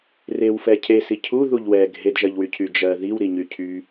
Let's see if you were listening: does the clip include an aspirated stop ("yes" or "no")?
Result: yes